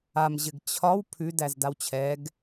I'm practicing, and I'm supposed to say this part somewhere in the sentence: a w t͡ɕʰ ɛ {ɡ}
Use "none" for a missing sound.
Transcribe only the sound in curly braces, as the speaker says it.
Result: ɡ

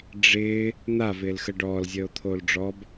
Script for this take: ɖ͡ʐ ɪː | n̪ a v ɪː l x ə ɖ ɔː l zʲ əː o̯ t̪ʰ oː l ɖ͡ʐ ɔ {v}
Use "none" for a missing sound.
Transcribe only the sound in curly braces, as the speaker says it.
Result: b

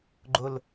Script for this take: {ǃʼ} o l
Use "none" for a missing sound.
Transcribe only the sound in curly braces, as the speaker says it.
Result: ɡ͡ǃ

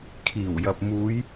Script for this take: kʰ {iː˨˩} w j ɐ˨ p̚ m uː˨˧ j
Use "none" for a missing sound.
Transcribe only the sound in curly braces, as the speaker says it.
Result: iː˨˩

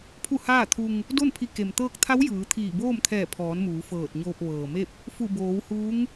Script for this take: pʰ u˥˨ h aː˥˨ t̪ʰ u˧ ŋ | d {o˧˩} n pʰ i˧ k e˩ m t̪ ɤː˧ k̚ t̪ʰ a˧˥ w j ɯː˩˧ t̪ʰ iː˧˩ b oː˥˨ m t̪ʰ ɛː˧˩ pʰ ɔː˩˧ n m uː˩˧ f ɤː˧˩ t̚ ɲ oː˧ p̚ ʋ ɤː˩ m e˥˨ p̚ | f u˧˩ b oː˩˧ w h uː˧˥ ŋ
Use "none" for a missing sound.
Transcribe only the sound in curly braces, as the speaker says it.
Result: o˥˨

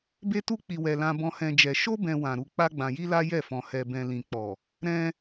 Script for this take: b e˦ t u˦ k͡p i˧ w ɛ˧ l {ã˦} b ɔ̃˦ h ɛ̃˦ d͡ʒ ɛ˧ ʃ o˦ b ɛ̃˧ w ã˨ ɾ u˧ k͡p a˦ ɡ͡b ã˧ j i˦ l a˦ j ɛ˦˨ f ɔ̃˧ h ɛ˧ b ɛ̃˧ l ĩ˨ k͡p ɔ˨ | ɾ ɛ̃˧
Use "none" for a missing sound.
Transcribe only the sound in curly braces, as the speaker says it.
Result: ã˦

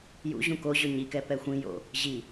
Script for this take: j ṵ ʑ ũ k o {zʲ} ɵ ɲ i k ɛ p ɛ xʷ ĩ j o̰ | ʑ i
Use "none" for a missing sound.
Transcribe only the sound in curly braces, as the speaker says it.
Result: ʑ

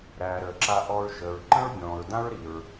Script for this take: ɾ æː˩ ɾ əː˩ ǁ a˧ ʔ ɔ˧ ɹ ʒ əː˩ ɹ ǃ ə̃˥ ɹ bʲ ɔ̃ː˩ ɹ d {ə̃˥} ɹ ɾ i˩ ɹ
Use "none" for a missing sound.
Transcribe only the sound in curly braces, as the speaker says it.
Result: ã˥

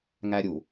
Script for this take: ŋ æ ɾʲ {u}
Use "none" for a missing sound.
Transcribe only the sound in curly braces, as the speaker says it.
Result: u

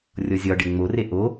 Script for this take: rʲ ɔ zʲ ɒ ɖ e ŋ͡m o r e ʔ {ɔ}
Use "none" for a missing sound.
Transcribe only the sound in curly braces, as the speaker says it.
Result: o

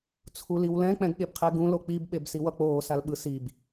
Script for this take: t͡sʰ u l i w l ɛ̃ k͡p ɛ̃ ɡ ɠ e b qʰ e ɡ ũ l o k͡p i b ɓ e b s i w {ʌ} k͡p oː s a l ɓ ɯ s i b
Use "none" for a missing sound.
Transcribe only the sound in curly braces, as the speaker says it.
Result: ʌ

